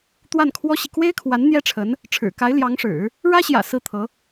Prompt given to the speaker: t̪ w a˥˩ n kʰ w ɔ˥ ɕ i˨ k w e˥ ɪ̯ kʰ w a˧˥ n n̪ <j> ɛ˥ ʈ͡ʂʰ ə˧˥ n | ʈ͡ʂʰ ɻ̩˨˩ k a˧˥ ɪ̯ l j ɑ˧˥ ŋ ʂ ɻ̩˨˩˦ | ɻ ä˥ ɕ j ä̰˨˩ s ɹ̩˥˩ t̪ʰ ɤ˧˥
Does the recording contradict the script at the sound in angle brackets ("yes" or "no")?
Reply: no